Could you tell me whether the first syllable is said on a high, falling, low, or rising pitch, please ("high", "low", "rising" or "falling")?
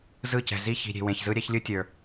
falling